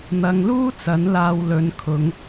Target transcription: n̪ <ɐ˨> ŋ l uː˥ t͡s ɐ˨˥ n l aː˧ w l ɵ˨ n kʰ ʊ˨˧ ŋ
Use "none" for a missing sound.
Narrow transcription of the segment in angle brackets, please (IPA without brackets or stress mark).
ɐ˨